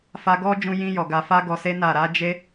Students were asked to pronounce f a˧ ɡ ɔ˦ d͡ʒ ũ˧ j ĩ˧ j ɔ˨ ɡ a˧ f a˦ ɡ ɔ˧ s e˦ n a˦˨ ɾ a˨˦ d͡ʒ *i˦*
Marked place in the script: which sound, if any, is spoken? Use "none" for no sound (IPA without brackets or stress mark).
e˦